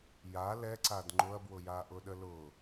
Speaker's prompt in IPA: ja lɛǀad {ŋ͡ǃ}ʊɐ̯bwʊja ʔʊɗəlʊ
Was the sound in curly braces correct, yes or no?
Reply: yes